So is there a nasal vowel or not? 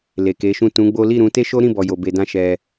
yes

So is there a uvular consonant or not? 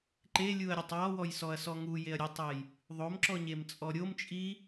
no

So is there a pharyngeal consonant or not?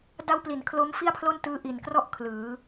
no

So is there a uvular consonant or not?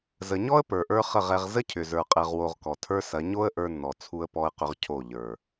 yes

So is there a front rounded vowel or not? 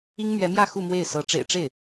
no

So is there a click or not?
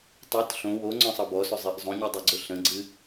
yes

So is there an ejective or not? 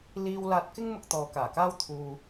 no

